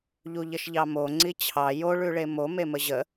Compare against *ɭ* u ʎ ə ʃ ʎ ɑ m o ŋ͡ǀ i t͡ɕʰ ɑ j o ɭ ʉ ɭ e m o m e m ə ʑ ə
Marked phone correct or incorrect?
incorrect